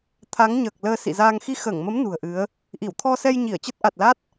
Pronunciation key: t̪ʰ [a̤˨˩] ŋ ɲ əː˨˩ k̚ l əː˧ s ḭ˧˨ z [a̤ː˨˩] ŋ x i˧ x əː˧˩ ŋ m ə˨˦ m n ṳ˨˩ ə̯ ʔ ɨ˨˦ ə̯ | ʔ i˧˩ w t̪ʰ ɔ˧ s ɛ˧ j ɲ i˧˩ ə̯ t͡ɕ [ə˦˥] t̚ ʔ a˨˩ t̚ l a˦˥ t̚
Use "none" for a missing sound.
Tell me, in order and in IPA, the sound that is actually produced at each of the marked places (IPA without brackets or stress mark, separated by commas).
a˨˦, aː˧, ə˦˥